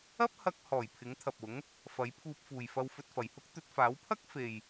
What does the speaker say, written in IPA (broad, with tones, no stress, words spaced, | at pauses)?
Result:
ɐ˥p̚hɐ˧k̚ hɔː˨˩j pʰɪ˨˥ŋt̪ʰɐ˨p̚ʊ˨˥ŋ | fɐ˨˥jpʰuː˧p̚fuː˨j fɐ˧wfɵ˧t̚fɐ˨jhʊ˥k̚ t̪ɵ˧t̚faː˨˥wpʰɐ˥k̚ fe˨j